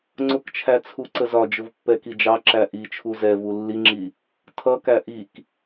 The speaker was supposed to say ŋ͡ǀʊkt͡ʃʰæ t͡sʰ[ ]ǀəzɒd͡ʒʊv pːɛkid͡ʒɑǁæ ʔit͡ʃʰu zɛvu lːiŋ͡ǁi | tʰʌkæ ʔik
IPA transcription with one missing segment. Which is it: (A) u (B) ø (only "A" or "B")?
A